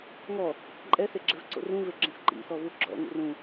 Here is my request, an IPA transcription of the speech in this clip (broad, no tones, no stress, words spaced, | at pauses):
ŋɔ | ǃʼɛseɡ͡ǁɛvǀo̰ rũveɡ͡ǁɛ̃s ǃḭsɔvu ɡ͡ǁɔ̰ŋṵr ũ